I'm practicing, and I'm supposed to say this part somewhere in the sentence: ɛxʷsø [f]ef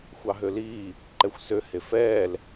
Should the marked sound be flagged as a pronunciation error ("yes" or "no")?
yes